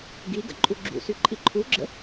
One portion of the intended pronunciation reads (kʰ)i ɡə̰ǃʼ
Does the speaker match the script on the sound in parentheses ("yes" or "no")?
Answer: no